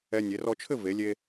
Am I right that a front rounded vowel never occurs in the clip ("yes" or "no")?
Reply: yes